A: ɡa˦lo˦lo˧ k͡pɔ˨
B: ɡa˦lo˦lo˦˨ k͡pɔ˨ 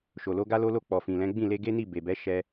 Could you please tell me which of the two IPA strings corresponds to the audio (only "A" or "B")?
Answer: B